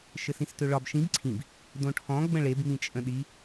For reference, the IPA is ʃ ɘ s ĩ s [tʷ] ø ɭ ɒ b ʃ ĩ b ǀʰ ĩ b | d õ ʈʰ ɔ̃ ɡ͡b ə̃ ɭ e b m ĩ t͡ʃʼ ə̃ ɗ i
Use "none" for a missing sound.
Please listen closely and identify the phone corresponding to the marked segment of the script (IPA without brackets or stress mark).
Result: t